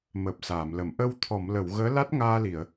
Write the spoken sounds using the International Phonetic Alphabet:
m əː˨˩ p̚ s aː˨˩˨ m l ə˨˩˨ m ʔ ə˧ w t̪ʰ ɔ˨˩˨ m l ə˨˩˨ w ɣ əː˧˥ l a˦˥ t̚ ŋ aː˧ l i˨˩˨ ə̯

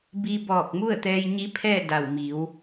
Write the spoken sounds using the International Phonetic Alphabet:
b i˧ b ɔː˧˩ k̚ m u˥˨ ə̯ t̪ ɛː˧ j ɲ i˧˥ pʰ ɛː˥˨ d a˧˩ w m i˩˧ w

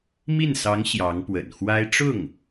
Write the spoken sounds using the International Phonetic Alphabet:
m i˥˩ n s ɑ˧˥ ŋ ɕ j ɑ˧˥ ŋ p w ə̰˨˩ n x w a˥ ɪ̯ ʈ͡ʂ ʊ˥˩ ŋ

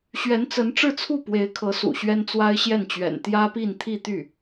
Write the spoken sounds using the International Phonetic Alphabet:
ɕ ɥ ɛ˧˥ n t͡s ə˧˥ n ʈ͡ʂ ɻ̩˥˧ t͡sʰ u˥˩ p w e˧˥ ɪ̯ kʰ ɤ˧˥ s ṵ˨˩ ɕ ɥ ɛ˥ n t͡s w a˥ ɪ̯ ɕ j ɛ˥˩ n t͡ɕ ɥ ɛ̰˨˩ n t̪ j ä˥ p i˥˧ n t̪ʰ i˥˧ t̪ y˥˩

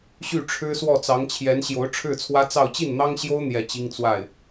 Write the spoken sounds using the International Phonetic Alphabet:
ɕ y˥˩ ʈ͡ʂʰ ɻ̩˥ s w ɔ˥˩ t͡s ɑ˧˥ ŋ t͡ɕʰ j ɛ˧˥ n ɕ j o˧˥ ʊ̯ ʈ͡ʂʰ ɻ̩˥˩ t͡sʰ w ä˥ t͡s ɑ˥˧ ʊ̯ t͡ɕ i˥˩ n n̪ ɑ˥ ŋ ɕ j o˥ ʊ̯ n̪ j ɛ˥˩ t͡ɕ i˥ ŋ t͡s w a˥˩ ɪ̯

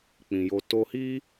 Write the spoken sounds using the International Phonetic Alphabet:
k͡p ĩ˨ j o˧ t o˧ h i˦

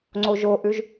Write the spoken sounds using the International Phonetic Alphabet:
ŋ͡ǀ o ʒ o ʔ ʉ ʒ

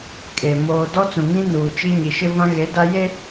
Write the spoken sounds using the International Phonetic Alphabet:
kʼ e˨ m oː˨ d ɔ˦ t͡s ũ˨ ŋ ĩ˦ n uː˨ t͡ʃ i˦ ɲ i˨ ʃ ɪ˦ v ã˦ ɣ e˨˦ d a˦ j e˦

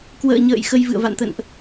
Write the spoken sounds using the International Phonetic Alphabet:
k w ə̰ː˧˨ ɲ ə̰ː˧˨ j x ə˧ j v ɨ̰˧˨ ə̯ v a̰˧˨ n t̪ ə̰˧˨ n ʔ

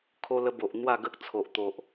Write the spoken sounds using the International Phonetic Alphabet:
kʰ o˧ l ə˧ b o˨ ʔ n̪ w a˥˧ ɡ ə˦ k̚ t͡sʰ o˨ ʔ t̪ o˨ ʔ

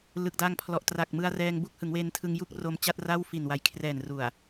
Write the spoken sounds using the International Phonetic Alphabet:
l ɯ˨˩ k̚ d aː˧ ŋ pʰ l ɔ˨˩ ʔ t r a˨˩ k̚ m ɯ˧ a̯ r ɛː˧ ŋ b u˥˩ k̚ h ɯ˩˦ ŋ w eː˧ n tʰ ɯ˧ ŋ j u˥˩ k̚ r o˧ m t͡ɕ a˥˩ t̚ r a˥˩ w f i˨˩ n w a˩˦ j kʰ r ɛː˨˩ n r u˨˩ a̯

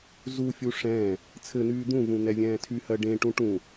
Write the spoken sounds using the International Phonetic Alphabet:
z u fʲ u ʂ ɛ̃ː | t͡sʰ ɘ n̪ yː d̪ ũ v ũ n̪ ɛ vʲ ɛ̃ː tʰ y h ɜ ɖ ẽ ʈ ũ ʈ ũ

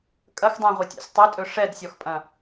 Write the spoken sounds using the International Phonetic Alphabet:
kʼ ɐ x dˤ æ̃ ʁʷ i tʲ æ̰ sʲ tˤ ɵ tʼ ɵ ʂ ɛ d sʲ ɔ x pʼ ɐ̃

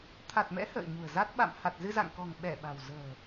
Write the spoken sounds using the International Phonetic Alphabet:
t̪ʰ a˨˩ t̚ m ɛ̰˧˥ h ə̰ː˧˨ ɲ ṳ˨˩ ə̯ z a˦˥ t̚ ɓ a̰˧˨ m h a˨˩ t̚ z ɨ˧ z a̰˧˨ ŋ k ɔ̤˨˩ ŋ ɓ ɛ˧˩ ɓ a̤˨˩ w z ə̤ː˨˩

